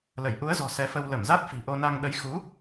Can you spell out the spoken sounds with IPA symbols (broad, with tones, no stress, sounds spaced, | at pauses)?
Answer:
l ə˧˩ j ʔ u˨˦ ə̯ z ɔ̤˨˩ s ɛ˨˦ f ə˧ w l ə˧˩ m z a˦˥ t̚ f i̤˨˩ ʔ o˧ n a˧ ŋ ɗ ə˨˦ j x u˨˦